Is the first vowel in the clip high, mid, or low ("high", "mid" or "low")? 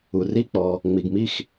high